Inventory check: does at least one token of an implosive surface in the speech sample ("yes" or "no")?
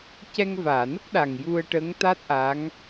yes